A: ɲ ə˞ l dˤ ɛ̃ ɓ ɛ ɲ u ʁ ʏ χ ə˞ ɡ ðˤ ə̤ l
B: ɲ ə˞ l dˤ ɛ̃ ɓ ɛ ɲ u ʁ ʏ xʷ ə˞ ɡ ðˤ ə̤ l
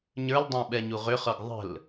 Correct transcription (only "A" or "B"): A